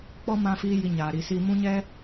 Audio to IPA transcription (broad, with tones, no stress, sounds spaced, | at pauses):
k͡p ɔ˦ m ã˦ f iː˦ j i˧ ɲ aː˨ ɾ i˨ s i˧ m ũ˦ ɲ ɛ˦